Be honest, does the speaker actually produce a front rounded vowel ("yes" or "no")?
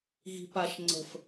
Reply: no